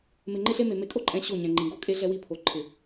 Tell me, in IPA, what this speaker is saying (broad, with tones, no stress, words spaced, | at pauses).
mɪ˨ŋ͡ǃɪ˦ɬe˦me˨ me˨kʼo˦ǃʼɛ̃˨ ɕo˦˨ɲɛ̃˨ŋ͡ǃĩ˨ɡo˦ kʼe˦ɮɛ˦wi˦˨pʰo˨ ǃʰɪ˨